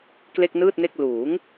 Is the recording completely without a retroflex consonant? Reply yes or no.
yes